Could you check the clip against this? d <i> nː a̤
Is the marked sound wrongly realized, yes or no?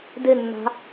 yes